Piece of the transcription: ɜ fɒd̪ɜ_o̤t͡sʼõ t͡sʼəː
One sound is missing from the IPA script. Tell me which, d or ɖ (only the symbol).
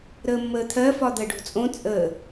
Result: ɖ